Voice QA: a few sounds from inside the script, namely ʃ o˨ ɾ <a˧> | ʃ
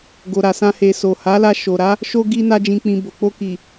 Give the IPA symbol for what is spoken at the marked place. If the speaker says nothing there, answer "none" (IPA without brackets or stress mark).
a˨˦